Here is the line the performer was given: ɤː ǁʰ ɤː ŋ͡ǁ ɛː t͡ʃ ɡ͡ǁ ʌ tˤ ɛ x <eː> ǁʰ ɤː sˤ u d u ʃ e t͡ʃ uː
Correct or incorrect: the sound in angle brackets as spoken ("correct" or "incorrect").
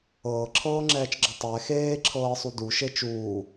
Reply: correct